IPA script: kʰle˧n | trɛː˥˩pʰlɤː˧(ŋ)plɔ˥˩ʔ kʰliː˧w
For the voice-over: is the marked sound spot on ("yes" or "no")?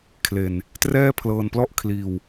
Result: no